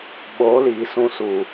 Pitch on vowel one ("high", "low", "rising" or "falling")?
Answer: rising